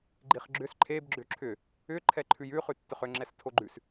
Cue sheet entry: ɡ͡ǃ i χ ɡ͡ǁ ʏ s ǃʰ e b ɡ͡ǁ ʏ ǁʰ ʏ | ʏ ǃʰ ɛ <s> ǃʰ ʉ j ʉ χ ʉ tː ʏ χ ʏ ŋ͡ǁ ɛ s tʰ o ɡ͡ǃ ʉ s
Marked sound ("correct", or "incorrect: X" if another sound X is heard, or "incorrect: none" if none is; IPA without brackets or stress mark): incorrect: none